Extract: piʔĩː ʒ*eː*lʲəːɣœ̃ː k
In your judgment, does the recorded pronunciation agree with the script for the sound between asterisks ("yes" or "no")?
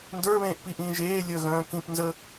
yes